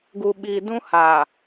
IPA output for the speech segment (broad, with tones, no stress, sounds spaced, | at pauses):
ɡ u˨ ɓ i˨ d ũ˦ h aː˨